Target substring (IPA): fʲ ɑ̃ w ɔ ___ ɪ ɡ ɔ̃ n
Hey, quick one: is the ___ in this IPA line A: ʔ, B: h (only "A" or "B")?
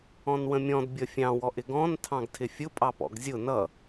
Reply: A